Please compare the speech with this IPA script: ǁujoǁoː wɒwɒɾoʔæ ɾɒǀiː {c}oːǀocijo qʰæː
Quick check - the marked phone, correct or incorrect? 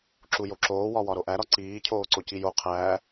incorrect